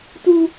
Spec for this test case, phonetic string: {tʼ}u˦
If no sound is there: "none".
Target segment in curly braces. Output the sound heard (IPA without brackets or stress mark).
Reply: t